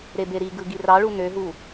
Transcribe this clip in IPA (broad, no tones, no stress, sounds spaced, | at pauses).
ɾ e b e ɾ i ɡ ɯ ɡ i r ɑ ɭ u n ø ɦ u